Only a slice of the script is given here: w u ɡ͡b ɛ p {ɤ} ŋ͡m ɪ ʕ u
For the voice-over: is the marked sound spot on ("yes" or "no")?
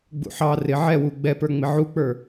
no